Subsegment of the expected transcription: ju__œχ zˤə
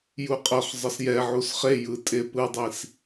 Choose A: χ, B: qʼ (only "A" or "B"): B